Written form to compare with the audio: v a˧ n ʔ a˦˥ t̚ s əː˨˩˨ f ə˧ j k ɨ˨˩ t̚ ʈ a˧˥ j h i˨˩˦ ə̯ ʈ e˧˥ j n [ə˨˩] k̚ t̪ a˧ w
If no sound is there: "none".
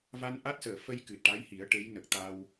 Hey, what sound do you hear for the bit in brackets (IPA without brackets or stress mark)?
ə˨˩